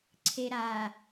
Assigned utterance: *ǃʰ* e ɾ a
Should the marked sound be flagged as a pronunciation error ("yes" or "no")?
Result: yes